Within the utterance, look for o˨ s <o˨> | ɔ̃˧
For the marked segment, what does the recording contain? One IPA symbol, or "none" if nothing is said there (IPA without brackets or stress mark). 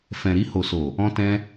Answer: o˨